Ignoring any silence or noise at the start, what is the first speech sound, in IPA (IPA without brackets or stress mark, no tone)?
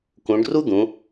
k